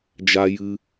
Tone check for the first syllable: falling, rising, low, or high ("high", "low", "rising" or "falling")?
high